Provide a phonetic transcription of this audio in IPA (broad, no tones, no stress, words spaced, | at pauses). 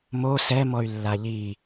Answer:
mo sɛmɔy̯ lːaʎi